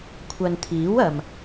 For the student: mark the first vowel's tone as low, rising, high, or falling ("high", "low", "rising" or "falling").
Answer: low